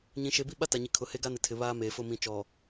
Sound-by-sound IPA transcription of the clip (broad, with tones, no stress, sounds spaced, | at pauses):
ɲ ĩ˨ ʃ e˨ b i˦ ɓ a˦ t a˨ ɲ i˨ kʰ ʊ˨ h e˦ ɡ a˦ n ɪ˨ tʰ ɪ˨ β aː˦ m eː˨ f ʊ˦˨ m ĩ˨ t͡ʃ ɔ˨